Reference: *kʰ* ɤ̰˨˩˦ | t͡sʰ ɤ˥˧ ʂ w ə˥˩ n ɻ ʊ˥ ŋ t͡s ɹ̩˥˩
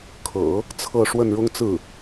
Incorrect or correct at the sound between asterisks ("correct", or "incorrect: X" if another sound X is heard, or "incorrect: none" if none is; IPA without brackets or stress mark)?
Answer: correct